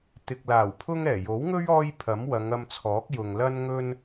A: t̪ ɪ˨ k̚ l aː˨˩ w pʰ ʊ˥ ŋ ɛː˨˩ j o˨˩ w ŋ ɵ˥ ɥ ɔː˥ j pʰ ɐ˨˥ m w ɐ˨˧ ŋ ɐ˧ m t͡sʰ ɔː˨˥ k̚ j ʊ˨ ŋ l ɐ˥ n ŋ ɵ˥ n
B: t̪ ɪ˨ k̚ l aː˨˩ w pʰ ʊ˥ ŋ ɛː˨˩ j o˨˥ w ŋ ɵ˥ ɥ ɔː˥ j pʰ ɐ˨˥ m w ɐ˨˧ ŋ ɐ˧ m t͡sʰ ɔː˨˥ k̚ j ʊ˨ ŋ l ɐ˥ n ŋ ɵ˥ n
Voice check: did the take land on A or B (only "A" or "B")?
B